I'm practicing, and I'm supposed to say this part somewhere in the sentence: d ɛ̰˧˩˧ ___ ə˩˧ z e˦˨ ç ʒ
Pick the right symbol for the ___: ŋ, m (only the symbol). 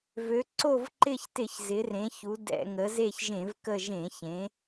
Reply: ŋ